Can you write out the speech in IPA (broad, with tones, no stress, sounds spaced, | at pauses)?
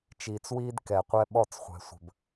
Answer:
t͡ʃ iː˨ t͡s w iː˦ d k ɛ˨ qʷ ɛ˦ ɓ ɔ˦˨ t͡s χʷ ɛ̤˨ sʷ ə̤˨ b